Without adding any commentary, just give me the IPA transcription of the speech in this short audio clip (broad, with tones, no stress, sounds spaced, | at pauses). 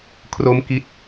kʰ r o˦˥ m k i˥˩ t̚